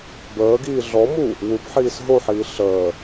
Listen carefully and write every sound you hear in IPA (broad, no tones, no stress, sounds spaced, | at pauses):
b əː ɡ iː ɮ ɔ m u | w u b ħ iː s ɦ o ħ iː ɬ əː